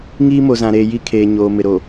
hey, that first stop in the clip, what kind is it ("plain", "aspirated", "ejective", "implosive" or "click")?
aspirated